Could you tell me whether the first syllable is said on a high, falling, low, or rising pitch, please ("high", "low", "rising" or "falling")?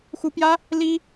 rising